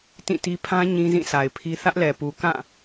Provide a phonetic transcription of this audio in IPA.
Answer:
tĩ˦˨ti˦ pʰã˦ ɲĩ˦zĩ˦˨sa˨ɪ̯pʰi˦ θä˦ʔlɛ˨pu˨ kã˦˨

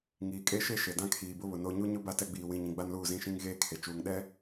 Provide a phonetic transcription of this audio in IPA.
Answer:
ŋiː˨kʼe˦ ʃe˦ʃe˨ dã˦kʰiː˨bʊ˦βʊ˨ no˦ ɲu˦ɲʊ˦ ba˦tɛ˦ ɡ͡biː˨wĩ˨ɲĩ˨ ɡ͡ba˦nluː˦˨zĩ˦˨ʃĩ˦ŋ ɣeː˦kʰe˨ t͡ʃuː˨ŋɗɛ˦

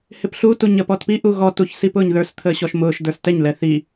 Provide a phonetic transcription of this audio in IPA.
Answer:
hɪpɬutu ɲəpɔtpiʔu ɣɔtuç sipʊːɲðə˞st̪ʰəː ɕɔʃmʊːʃdə˞s tɛɲlɛ θi

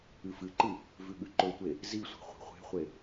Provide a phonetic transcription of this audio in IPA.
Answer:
ɨfɨǃɨ | vʉɠʉǃɵtʷe | zisʷa̤ χʷi̤χʷe̤χʷe

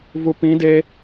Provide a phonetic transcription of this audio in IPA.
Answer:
vupĩ de

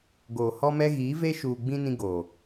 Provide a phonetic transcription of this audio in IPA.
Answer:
ɡoː˨ hɔ˦mɛ˦ ɣiː˨˦veː˦ʃuː˨ɡ͡bĩ˦ nĩ˦ɡoː˨

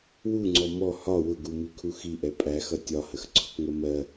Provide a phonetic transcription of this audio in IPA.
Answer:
wuŋ͡ǀɔ mɔ hɒ wʊɡumikʰu xiʔɛ pʼæxʌ tʲɒhəxǀʰʊkŋə mɜ

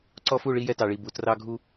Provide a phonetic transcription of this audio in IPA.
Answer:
ǀɔ˦fu˦˨ɭi˦jɛ˦ tɑ˨ɭi˨ bu˨ trɑ˦ɡʱu˦

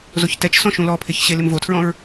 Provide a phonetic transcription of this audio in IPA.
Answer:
zoçtɛt͡ʃsɔ̃ ʃũlɔpʰɪç ɕelɪmvotʰɹɔ̃ɹ

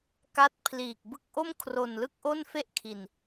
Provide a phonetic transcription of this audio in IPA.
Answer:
ka˦˥t̚pʰliː˨˩k̚ bɯ˦˥k̚ʔo˥˩m kʰro˨˩nlɯ˥˩k̚ʔo˥˩n fe˥˩ʔkʰi˨˩n

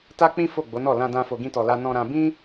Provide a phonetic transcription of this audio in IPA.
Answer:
ta˦k͡pĩ˦ fo˦˨ɡ͡bo˨˦nɔ˦˨ lã˧dã˧ fo˧ɡĩ˦tɔ˧la˦ nɔ̃˧ɾã˧ bĩ˦

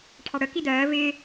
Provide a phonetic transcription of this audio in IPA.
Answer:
ʈʰɑɽə kidɜː vɪː

